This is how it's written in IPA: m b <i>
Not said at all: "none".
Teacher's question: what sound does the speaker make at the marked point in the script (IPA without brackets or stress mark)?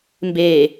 e